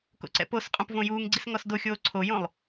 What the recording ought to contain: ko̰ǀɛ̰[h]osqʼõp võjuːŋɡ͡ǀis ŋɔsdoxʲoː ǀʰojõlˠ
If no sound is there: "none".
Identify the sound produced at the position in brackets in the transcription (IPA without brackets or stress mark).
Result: p